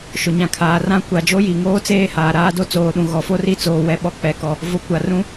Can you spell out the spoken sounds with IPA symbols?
ʃ ʊ˨ ɲ ã˨ kʰ aː˨ r ã˦ kʷ a˨ d͡ʒ o˦ j i˨ ŋ oː˦ t͡s eː˦ h aː˨ ɾ aː˦ d o˦ t͡s oː˨ ɗ ũ˨ ɣ ɔ˨ f o˦ r i˦ t͡s oː˨ w ɛ˨ ɓ ɔ˨ k͡p ɛ˨ k ɔ˨ | v ʊ˨˦ kʷ a˨ r ũ˦

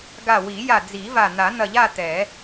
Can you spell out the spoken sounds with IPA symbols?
ɡ a˧˩ w i˨˩˦ j a˧˩ d͡z i˨˩˦ v a˧˩ n̪ a˨˩˦ n̪ ɐ˧˩ ʎ a˥˧ t̪ ɛ˨˩˦

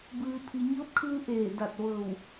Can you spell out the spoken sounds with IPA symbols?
b ɯː˩ pʰ i˩ ɲ ɤː˧˥ p̚ kʰ ɯː˧ ʔ eː˧˩ d a˧˩ t̚ ʋ ɤː˧˩ w

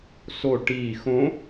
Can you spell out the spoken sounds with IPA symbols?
s o ʈ iː x õ

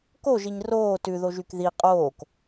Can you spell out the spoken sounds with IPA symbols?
k o ʒ i ɲ r oː t ʉ ð o ʒ y k ð i qʼ oː k

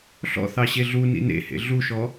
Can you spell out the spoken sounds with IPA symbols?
ɬ ɔ̰ θ ɑ ɕ e ɮ u n ḭ n ḛ h ḛ ɮ u ʃ ɔ

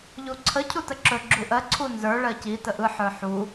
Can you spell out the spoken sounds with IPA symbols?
ʎ u ǀʰ ə cʰ u t ə ǁ ɵ ɡ͡ǁ u ʔ ɜ ǀʰ u n z ə˞ ɭ ɜ c i t ə ʔ ɯ ħ ə˞ ħ u

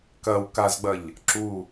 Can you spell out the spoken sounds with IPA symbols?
k ɐ w k a z ɡ͡b ɐ ʎ | ǁ u

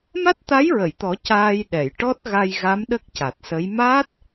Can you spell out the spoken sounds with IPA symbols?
m a˦˥ t̚ t̪ a˧˥ j ɹ ə˨˩˨ j t̪ ɔ˨˩˦ c aː˧ j ɗ ɛ˨˩˨ j ʈ ɔ˦˥ t̚ ɣ a˧ j ɣ a˧˥ m ɗ ə˦˥ k̚ c a˨˩ t̚ s ə˧˥ j m aː˦˥ t̚

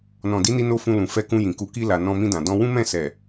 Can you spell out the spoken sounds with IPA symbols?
n ɔ̃˨ d i˨˦ n i˧ n o˧ f ũ˧ l ũ˨ f ɛ˧ k ũ˧ j ĩ˨ k u˧ k i˧ l a˨ n ɔ̃˧ m ĩ˧ d ã˨ d ɔ̃˧ w ũ˦ m ɛ̃˦˨ s ɛ˨

